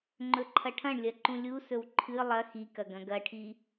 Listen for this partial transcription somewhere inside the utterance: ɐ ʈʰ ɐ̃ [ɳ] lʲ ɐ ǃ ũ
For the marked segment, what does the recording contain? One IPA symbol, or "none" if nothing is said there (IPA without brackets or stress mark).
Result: ɳ